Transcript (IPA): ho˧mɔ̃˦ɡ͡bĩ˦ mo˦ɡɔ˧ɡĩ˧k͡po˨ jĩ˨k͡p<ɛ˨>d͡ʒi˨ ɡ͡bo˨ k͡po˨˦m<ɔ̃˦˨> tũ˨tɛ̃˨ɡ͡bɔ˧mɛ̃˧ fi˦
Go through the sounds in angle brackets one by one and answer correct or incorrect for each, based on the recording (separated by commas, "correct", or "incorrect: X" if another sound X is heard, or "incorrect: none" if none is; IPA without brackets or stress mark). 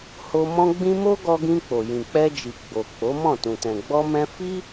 incorrect: ɛ˧, correct